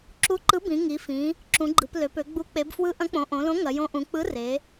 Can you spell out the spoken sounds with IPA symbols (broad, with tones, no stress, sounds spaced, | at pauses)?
ǁ u˨˥ ǃ ɯ˨˥ b ĩ˩˧ ŋ i˩˧ f ĩ˩˧ | ǁ ũ˩˧ ɡ͡ǃ ɯ˩˧ p l ø˩˧ p ø˩˧ ɡ͡b u˨˥ k͡p e˩˧ b f w ɯ˨˥ ʔ ɐ̃˨˥ k͡p õ˩˧ ʔ õ˩˧ l õ˨˥ ŋ ɐ˩˧ j õ˨˥ ʔ ũ˩˧ k͡p ɯ˨˥ r e˩˧